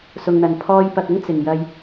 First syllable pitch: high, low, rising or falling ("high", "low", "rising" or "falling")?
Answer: low